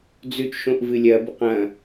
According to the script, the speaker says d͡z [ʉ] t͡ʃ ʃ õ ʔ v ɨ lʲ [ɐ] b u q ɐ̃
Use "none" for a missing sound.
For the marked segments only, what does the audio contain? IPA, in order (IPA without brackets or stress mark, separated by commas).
ʉ, ɐ